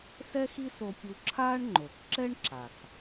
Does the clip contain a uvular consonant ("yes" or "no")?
no